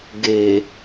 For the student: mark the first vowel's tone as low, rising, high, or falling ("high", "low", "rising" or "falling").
low